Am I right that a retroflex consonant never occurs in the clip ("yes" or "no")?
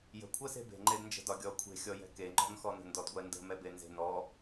yes